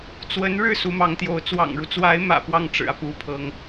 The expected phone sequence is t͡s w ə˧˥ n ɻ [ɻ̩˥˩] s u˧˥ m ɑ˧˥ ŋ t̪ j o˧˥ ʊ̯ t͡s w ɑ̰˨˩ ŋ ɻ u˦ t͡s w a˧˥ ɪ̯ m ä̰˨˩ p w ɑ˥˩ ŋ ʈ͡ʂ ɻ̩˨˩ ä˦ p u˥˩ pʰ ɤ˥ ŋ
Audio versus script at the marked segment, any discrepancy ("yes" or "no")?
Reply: no